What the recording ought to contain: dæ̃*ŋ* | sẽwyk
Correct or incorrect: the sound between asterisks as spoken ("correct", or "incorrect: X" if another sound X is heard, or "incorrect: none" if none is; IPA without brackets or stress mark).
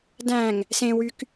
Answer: correct